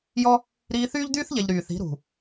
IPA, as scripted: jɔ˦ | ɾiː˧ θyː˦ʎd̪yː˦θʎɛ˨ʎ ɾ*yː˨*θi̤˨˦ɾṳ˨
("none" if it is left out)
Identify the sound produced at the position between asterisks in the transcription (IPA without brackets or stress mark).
yː˨